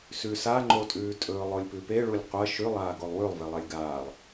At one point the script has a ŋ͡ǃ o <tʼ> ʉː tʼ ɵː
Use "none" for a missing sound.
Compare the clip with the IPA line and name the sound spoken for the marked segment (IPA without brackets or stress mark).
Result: tʼ